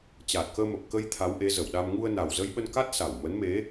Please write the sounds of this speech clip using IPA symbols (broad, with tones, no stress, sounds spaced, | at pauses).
t͡ɕ aː˨˩ t̚ k əː˧ m ə˨˩ p̚ k ə˧ j t̪ʰ a˨˦ w ʔ e˨˦ z ə˧˩ w ɗ a˧ m ŋ u˧ ə̯ n a˨˩ w z ə˧ j ɓ ə˧ n k a˦˥ t̚ s a˧˩ w m ə˨˦ n m e˨˦